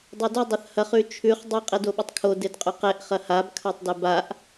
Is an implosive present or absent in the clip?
present